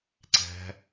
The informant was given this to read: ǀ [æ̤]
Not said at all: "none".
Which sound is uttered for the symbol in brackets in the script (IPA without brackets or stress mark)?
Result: æ̤